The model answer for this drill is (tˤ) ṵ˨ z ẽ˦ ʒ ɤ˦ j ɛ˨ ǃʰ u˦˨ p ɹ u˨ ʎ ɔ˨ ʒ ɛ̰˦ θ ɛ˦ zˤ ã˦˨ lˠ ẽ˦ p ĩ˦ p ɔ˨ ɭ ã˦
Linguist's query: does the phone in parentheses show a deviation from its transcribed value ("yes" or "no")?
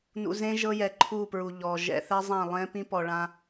yes